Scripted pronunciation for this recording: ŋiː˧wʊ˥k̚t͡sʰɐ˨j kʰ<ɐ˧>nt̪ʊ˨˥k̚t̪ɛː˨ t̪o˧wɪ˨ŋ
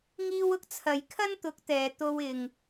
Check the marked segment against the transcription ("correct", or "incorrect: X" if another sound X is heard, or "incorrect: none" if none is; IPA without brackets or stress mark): incorrect: ɐ˥